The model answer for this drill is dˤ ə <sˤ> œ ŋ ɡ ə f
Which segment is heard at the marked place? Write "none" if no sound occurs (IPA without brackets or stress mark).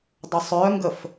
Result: sˤ